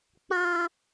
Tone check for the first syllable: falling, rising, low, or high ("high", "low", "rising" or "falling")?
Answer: high